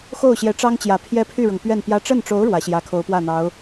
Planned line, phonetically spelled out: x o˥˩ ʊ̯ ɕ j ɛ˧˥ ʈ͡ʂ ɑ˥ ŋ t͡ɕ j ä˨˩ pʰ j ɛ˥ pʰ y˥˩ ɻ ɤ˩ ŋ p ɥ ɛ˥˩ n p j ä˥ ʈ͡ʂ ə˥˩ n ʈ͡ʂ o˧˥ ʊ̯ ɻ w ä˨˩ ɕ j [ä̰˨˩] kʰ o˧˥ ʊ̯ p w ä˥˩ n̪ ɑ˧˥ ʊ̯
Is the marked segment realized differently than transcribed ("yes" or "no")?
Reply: yes